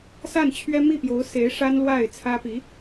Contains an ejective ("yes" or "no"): no